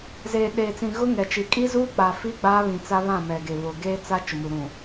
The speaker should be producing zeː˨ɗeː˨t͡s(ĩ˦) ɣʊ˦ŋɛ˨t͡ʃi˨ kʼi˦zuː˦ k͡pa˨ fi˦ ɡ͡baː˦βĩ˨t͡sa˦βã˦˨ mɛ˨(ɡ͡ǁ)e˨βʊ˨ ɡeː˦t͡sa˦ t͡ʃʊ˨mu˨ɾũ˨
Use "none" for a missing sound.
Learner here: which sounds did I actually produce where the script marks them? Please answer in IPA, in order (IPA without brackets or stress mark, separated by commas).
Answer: ĩ˨, ɡ